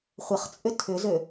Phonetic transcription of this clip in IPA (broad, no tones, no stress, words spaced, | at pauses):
χʷəχt͡sʼʏ tʰʏzø